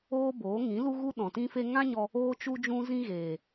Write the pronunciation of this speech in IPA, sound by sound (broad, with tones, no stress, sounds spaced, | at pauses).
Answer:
oː˦ b oː˨˦ ŋ ĩ˨˦ l u˦ ɣ u˦ ɗ ɔ̃˨ t ĩ˦ f e˦ ŋ ã˦ ɲ ɔ˧ | oː˦ t͡ʃ u˦ d͡ʒ ũ˦ z ĩ˦ ɣ eː˨